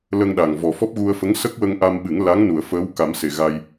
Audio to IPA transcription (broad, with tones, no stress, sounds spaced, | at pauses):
l ə˧ ŋ ɗ a˨˩ ŋ v ɔ˨˩ f ɔ˦˥ p̚ ɣ u˧ ə̯ f ə˧˥ ŋ s ə˦˥ k̚ w ə˧ ŋ ʔ a˧ m ɓ ɨ˨˩˦ ŋ l a˧˥ ŋ n u˨˩˨ ə̯ f əː˧˥ w k a˨˩˦ m s e˨˩ ɣ a˧ j